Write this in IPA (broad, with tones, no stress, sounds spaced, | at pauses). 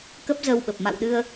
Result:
k ə˦˥ p̚ z əː˧ w ɓ ə˨˩ p̚ m a̰˧˨ w ɗ ɨ˧ ə̯